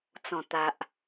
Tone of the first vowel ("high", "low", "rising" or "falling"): low